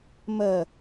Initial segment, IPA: m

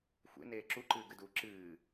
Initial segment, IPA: xʷ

